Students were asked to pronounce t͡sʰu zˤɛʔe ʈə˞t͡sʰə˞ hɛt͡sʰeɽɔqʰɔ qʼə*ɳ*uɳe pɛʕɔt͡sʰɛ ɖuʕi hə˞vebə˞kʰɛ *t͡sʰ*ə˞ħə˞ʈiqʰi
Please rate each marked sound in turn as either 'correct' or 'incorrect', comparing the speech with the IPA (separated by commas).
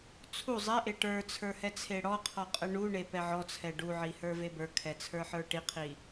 correct, correct